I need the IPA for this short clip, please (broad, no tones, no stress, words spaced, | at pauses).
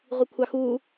ʁʷikʷʰɑxuː